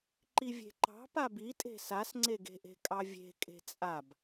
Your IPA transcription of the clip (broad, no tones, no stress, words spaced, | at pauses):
ǃivʲe̤ǃɑ̤ pabitʼe̤ sasŋ͡ǀeɡe̤ʔe̤ kʼɑvʲe̤ kʼe̤t͡sʼab